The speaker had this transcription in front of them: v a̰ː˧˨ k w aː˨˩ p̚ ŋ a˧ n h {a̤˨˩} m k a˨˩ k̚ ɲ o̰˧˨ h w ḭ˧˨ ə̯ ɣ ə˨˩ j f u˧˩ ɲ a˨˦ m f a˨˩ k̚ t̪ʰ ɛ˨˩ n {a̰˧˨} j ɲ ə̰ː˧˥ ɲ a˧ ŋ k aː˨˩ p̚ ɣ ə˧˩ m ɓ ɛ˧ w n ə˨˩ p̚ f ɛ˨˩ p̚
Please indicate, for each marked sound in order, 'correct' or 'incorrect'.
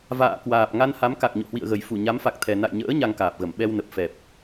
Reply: incorrect, correct

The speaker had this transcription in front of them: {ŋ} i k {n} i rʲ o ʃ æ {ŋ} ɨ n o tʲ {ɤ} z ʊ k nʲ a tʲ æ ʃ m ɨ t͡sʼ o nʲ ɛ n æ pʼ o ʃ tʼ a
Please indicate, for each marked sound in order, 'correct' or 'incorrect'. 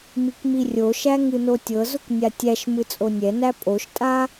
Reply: incorrect, incorrect, correct, correct

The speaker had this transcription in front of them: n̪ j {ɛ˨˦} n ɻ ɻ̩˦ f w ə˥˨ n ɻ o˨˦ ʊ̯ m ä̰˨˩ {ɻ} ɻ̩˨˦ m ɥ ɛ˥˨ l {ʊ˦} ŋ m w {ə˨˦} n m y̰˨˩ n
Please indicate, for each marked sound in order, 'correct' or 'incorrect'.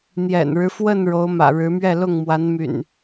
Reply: incorrect, correct, incorrect, incorrect

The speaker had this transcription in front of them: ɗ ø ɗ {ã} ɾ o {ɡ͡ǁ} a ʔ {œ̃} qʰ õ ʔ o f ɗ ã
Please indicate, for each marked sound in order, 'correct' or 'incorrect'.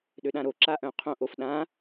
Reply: correct, incorrect, correct

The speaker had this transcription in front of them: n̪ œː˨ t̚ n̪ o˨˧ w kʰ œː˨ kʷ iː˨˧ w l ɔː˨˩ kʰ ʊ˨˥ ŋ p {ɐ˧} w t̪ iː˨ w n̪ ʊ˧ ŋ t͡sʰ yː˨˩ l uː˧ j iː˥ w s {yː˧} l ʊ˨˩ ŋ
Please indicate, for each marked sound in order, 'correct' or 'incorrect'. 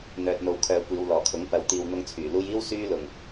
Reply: incorrect, correct

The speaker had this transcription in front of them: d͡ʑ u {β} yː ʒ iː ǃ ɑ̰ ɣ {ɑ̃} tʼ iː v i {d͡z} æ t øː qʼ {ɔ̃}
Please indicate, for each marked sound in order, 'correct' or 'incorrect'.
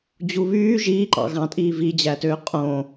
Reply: correct, correct, incorrect, incorrect

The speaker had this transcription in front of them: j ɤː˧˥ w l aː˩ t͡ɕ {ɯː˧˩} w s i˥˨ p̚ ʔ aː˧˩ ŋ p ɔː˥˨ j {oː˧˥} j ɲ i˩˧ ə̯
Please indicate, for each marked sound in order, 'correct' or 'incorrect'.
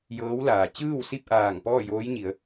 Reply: incorrect, correct

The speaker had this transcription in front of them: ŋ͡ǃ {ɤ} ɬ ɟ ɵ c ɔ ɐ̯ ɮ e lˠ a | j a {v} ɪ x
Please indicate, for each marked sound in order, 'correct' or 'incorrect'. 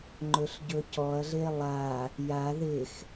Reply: incorrect, incorrect

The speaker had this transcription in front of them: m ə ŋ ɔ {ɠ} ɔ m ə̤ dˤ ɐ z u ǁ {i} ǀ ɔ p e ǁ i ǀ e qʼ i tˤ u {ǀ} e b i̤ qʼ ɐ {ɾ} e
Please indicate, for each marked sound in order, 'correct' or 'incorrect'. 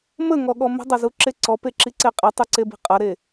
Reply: correct, incorrect, correct, correct

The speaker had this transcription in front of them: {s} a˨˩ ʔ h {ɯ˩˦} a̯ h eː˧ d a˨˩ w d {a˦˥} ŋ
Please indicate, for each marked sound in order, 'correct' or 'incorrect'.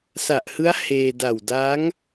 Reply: correct, incorrect, correct

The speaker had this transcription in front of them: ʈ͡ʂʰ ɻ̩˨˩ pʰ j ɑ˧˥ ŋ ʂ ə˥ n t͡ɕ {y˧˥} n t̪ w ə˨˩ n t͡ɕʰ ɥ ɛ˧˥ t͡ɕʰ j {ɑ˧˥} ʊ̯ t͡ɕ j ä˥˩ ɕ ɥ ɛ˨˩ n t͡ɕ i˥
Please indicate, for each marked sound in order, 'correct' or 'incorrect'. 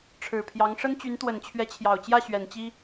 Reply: correct, incorrect

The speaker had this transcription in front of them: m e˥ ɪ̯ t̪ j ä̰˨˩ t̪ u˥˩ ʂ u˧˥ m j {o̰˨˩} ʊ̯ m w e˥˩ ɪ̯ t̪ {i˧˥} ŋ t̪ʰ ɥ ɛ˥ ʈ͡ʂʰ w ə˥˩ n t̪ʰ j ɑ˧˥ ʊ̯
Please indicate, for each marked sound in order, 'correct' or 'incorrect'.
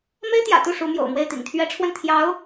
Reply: correct, incorrect

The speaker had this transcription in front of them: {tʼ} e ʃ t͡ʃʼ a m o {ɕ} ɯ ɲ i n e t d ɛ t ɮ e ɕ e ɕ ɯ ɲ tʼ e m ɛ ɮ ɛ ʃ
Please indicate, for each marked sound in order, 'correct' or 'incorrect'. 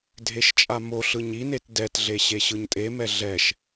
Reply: incorrect, incorrect

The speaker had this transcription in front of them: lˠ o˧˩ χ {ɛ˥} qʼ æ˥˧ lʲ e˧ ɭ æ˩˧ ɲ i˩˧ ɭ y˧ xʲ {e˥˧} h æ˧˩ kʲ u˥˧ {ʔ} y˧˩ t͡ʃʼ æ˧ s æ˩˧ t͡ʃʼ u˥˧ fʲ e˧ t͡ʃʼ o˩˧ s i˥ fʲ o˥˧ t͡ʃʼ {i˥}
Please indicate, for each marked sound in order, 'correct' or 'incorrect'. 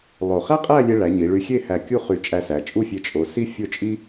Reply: incorrect, correct, incorrect, correct

